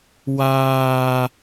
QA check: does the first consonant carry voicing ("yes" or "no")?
yes